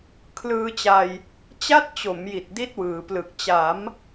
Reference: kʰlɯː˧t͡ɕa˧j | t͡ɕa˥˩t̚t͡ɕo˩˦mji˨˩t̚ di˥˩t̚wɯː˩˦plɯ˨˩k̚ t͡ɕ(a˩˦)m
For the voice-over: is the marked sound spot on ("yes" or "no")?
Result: yes